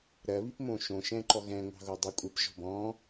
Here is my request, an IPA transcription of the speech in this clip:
ɾ ɜ β i p m õ ʃ õ ʃ ɛ̃ ǃ ɔ ɣ ɛ̃ ŋʷ ɑ̤ ɣ o dˤ ɜ kʷʼ ɯ p ʒ ɔ̤ b ɔ̃

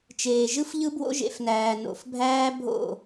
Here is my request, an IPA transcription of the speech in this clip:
t͡ʃ eː˨ ʒ ɯ˦ f ʎ ɯ˦ b w o̰˦ ʒ ḛ˨ f n æː˨ n o̰˨ f bʱ æː˦ bʱ o̰˦˨

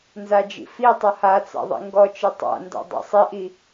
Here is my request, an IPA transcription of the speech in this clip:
n z a d͡ʒ ḭ f i tˤ ʌ h a t͡s a̰ ðˤ ḭ ŋ ɡ ɔ t͡ʃ i tˤ a̰ n d a̰ dˤ a̰ sˤ i ʔ i

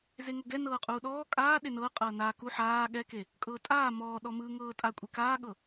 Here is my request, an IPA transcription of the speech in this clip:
z e ŋ o ɡ ɛ n ɤː qʼ uː ɗ ɔː kʼ aː ɗ e n ɤː qʼ ɤː n aː k u ħ aː ɠ ɛ k e | kʼ ɤː tʼ aː m ɔː ɗ ɔ m ɯː ŋ ɤː tʼ a kʷʼ e k aː ɠ ɤ

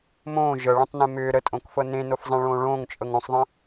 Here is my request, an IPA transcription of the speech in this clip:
m õː ʒ ɤ ɭ ẽ tˤ n ẽ m ʏː ɾ ə tʼ õ k f ɤ n ẽ n o f zˤ ẽ ɭ õː ɭ õː ŋ t͡ʃʼ ɤ ŋ õ sˤ ðˤ ə̃

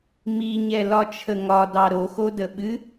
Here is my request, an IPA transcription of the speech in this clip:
m i ɲ ɛ l ɒ t͡ʃʰ ə ŋ ɒ d ɑ ɾ o x o d ə ɓ ɨ

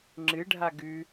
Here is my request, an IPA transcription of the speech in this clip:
ŋ͡ǁ ɨ ɖʱ a ɡ ʉ

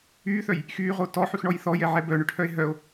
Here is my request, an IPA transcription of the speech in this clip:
yː θ œ j | x yː ʁ o t ɔ ħ y x ɳ ɔ j θ ɔ j ɛ ʕ ɛ b œ ɳ ʏ ʈʰ œ e̯ ɦ œ o̯

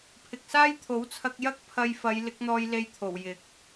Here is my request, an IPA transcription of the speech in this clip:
pʰ ɪ˨ k̚ s aː˥ j t̪ʰ o˨˥ w t͡sʰ ɐ˧ k̚ j ɐ˥ k̚ pʰ ɐ˧ j f ɐ˨˧ j l ɪ˨˥ k̚ n̪ ɔː˧ j l e˧ j t̪ʰ o˨˩ w j ɪ˨˥ k̚

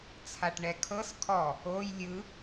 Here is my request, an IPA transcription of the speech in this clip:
t͡sʰ a ʈ ɳ ɛ kʰ ɤ s kʰ ɔ | o j lʲ ɯ

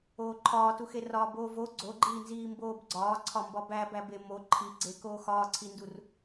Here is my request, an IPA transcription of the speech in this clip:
oː ǃʰ ɒː t u x e r ɒː b oː v o ɡ͡ǀ o ɡ͡ǃ iː n z iː m b oː b ɡ͡ǀ ɒː ǀʰ ɒ m b ɒ b æ b æ b e m o ǃʰ i ɡ͡ǀ eː k oː x ɒː ǀʰ i n d u r

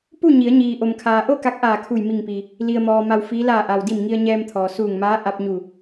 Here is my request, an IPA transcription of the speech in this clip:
p u˥˨ ɲ i˩˧ ə̯ ɲ iː˩ ʔ o˩ m kʰ aː˩ ʔ o˥˨ k a˧˥ k̚ ʔ aː˧˩ kʰ u˧˩ j m i˧˩ ŋ p i˩ | l i˩ ə̯ m ɔː˩ m a˧ w f iː˧˥ l aː˧˩ ʔ a˩ w d i˧˩ m ŋ i˧ ə̯ ɲ ɛː˧ m t̪ʰ ɔː˩ s uː˧˩ ŋ m aː˧˥ ʔ a˧ p̚ ɲ u˧˩

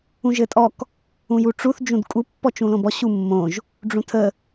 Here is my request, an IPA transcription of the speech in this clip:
ũ ʒ ɘ tʼ ɔ k | ũ j u ʈ͡ʂ u θ d͡ʒ ũ d kʼ u pː ɔ t͡ʃ ũ l õ b ɔ ɕ u mː õ ʒ | ɖ͡ʐ ũ tʰ ə

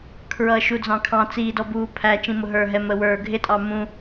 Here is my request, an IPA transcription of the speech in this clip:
kʰ ɹ ʌː ʃ u d͡z ɑ̃ kʰ ɑ̃ t͡s iː d ɔ b uː pʰ æ t͡ʃ ĩ m ʊ ɦ ə˞ ɦ ɛ m ə w ə˞ ɡʱ ɪ tʼ ɑ m ũ

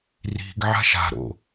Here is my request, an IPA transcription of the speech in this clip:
r i̤ ɡ ʕ a̤ ʃ a̤ ɾ o̰

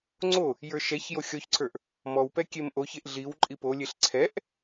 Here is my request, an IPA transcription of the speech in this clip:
ŋ͡ǀ o | j ə˞ ʃ ɛ ç j o xʲ ɔ ç ǀʰ ə˞ ʔ | m ɔ w p ɛ kʲ e m ʔ o ç e ʔ ɮ i w ǃʼ i p o lʲ e ɬ ǀʰ ɛ ʔ

